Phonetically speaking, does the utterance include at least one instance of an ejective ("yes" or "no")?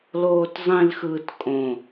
yes